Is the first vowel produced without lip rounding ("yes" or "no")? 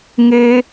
yes